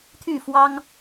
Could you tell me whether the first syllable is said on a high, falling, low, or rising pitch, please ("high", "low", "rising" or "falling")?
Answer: falling